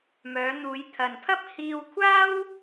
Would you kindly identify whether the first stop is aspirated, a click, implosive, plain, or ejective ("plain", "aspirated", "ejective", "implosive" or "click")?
aspirated